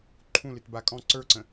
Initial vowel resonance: nasal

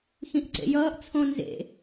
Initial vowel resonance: nasal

